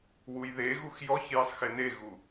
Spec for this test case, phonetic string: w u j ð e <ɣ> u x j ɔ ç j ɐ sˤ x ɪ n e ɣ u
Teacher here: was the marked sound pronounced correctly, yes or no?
yes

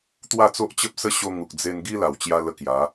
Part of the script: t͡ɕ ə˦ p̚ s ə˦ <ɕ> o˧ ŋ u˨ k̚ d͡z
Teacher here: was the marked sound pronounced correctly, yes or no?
yes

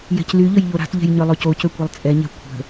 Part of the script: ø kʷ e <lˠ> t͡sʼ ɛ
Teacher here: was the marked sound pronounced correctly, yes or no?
yes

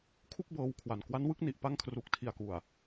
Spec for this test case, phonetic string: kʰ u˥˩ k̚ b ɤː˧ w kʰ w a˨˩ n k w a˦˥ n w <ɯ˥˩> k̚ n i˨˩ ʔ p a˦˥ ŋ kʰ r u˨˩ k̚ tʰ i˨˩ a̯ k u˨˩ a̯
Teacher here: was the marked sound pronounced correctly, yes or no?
yes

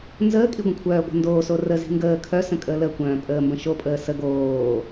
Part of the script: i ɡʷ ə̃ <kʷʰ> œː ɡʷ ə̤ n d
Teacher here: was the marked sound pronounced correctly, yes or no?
yes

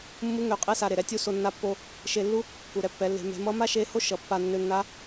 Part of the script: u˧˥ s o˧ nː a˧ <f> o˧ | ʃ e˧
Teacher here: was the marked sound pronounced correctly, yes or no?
no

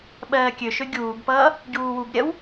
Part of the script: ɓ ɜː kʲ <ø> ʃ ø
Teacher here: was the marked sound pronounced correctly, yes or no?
yes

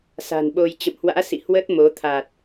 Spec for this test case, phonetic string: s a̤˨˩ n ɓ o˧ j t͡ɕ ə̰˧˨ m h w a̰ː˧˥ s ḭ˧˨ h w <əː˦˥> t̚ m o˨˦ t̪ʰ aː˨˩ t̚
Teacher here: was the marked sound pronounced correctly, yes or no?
yes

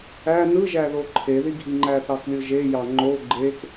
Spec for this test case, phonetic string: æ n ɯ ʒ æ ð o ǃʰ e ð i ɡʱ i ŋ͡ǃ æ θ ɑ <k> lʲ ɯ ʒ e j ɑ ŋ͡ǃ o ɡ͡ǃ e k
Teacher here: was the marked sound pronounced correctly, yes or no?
yes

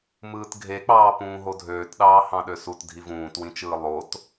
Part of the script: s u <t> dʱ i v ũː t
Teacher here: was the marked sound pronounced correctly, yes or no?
yes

